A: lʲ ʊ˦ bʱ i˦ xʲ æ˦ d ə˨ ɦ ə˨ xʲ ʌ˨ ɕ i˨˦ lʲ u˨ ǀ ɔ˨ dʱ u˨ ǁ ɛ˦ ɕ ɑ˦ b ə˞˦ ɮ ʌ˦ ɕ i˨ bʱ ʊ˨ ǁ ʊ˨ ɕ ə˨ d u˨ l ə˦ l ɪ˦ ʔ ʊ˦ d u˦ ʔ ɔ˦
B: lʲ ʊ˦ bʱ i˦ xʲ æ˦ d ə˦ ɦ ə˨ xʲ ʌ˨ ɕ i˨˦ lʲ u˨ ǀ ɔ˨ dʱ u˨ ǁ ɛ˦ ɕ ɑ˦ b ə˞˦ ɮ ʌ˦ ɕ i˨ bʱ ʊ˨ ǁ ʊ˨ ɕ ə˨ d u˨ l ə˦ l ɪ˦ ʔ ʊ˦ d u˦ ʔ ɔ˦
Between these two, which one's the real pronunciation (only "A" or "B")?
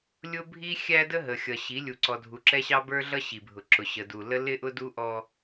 B